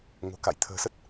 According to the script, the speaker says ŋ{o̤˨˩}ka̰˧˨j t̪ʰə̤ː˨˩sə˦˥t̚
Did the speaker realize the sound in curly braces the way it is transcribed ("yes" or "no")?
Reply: yes